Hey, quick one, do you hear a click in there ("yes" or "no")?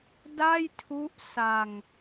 no